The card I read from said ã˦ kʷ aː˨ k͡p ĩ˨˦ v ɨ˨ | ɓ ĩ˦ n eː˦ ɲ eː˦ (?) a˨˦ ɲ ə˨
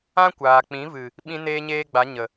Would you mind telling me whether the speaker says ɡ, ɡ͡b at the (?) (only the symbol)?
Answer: ɡ͡b